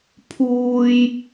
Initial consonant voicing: voiceless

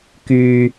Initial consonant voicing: voiceless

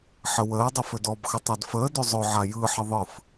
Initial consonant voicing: voiceless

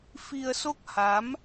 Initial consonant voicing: voiceless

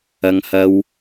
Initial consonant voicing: voiced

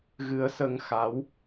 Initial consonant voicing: voiced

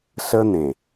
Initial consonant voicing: voiceless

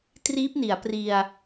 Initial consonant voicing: voiceless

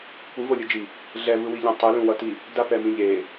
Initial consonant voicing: voiceless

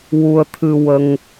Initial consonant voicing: voiced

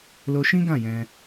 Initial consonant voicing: voiced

